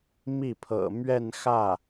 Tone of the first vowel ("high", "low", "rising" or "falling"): falling